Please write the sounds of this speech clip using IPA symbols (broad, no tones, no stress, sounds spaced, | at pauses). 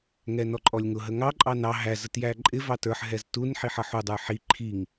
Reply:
ŋ ɛ n ɔ ǃʼ ɔ lʲ ŋ ʊ ɦ ə ŋ ɑ ǃʼ ɑ n ɑ ɦ æ z ə t j æ ǃʼ ɪ v ɑ t ə˞ ħ ɦ ɛ z t u n ħ i ħ ʌ ħ u dˤ ə˞ ħ i ǃʰ i ŋ